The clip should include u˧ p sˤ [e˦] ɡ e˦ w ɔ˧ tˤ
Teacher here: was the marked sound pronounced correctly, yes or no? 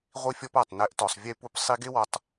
no